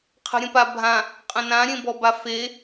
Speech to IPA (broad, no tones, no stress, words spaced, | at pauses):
qʰə̤ɾʲə̃pabʱã | qʼə̃nã ɾʲẽbɔbafe